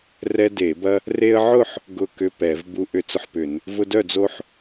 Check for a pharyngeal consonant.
present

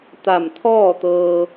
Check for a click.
absent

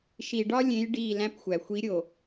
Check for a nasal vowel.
present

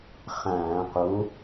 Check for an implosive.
absent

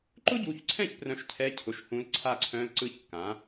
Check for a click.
present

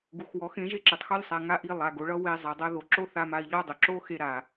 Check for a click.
present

